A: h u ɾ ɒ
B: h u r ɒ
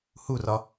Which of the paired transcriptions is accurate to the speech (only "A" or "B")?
B